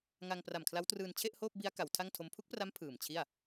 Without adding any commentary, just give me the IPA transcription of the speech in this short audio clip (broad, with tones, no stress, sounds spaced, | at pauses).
ŋ a˧ ŋ p r a˨˩ m kʰ l a˦˥ w t r ɯː˧ n t͡ɕʰ e˥˩ ʔ h oː˥˩ p̚ b i˦˥ a̯ k a˩˦ w tʰ a˥˩ ŋ tʰ o˦˥ m pʰ u˦˥ k̚ p r a˦˥ m pʰ ɯː˨˩ m t͡ɕʰ i˥˩ a̯